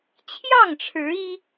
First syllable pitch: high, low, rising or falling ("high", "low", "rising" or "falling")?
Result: falling